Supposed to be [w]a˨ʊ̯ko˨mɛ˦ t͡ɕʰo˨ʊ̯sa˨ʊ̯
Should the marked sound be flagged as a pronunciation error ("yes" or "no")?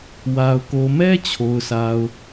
no